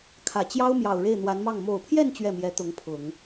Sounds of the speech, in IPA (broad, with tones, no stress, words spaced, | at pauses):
kʰä˨˩ t͡ɕjɑ˥ʊ̯mjɑ˨˩ʊ̯ ɻe˥˩ɪ̯n̪wa˧˥nmɑ˥˩ŋ mo˨˩ʊ̯pʰjɛ˥˧n t͡ɕɥɛ˥˩mjɛ˧˥ t̪ʊ˧˥ŋpʰʊ˨˩˦ŋ